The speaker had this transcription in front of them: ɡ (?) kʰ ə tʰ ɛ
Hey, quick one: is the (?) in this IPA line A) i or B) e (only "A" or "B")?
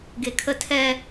B